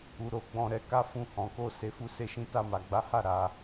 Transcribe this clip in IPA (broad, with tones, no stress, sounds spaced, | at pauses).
u˧ ɾ o˧ ɡ͡b ɔ̃˦ ɾ ɛ˧ k a˦ f ũ˧ h ɔ̃˨ k o˧ s e˧ f u˦ s e˦ ʃ ĩ˦ t a˧ m a˨ ɡ͡b a˨˦ h a˦˨ ɾ a˧